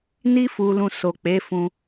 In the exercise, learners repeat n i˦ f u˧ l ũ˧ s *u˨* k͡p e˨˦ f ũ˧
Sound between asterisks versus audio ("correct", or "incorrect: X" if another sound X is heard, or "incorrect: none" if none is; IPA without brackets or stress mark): incorrect: o˨